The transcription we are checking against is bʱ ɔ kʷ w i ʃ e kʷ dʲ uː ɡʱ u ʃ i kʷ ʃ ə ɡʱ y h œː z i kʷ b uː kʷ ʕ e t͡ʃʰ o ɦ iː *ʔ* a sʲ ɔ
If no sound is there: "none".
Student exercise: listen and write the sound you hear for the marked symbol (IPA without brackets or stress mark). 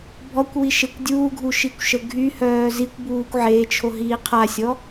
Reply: qʰ